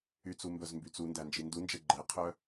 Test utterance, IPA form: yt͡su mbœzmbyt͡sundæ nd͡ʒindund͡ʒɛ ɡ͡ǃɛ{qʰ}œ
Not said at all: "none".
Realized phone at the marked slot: qʰ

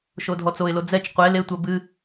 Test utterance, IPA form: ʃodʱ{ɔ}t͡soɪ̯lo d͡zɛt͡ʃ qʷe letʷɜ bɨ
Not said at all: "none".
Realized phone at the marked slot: ɔ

